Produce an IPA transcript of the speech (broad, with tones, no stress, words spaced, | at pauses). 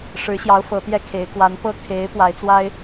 ʂɻ̩˧˥ɕjɑ˧˥ʊ̯ fɤ˧˥t̪jɛ˥kʰe˧˥ɪ̯ kwa˧˥npɤ˥ kʰe˧˥ɪ̯ pwa˧˥ɪ̯t͡swa˥ɪ̯